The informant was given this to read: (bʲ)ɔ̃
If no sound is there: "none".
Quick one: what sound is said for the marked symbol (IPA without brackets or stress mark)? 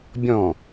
bʲ